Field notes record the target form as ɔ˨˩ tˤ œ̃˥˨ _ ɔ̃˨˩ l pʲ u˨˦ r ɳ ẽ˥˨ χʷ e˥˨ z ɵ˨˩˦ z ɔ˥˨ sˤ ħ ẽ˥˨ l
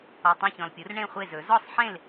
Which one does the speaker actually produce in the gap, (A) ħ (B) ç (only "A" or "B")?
B